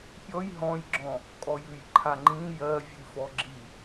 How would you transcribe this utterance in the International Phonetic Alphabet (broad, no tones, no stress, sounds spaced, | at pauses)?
pʲ ɔ j ɦ ɔ̃ j ɡ͡ǁ ɔ̃ | kʼ ɔ j ʉ j ǃʰ a ŋ͡ǃ ĩ j ɜ vʲ ʉ f ɔ ɡ͡ǁ i